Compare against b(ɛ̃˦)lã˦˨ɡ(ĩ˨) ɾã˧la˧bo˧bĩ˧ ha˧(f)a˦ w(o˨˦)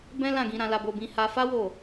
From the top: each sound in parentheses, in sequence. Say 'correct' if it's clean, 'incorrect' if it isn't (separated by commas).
correct, incorrect, correct, incorrect